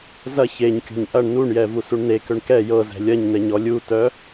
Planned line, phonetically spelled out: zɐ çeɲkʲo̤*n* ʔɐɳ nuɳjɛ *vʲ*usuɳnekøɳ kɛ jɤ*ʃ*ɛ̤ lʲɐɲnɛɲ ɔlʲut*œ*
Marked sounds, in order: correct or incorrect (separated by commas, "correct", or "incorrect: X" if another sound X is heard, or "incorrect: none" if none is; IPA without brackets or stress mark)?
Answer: incorrect: ɲ, incorrect: v, incorrect: z, correct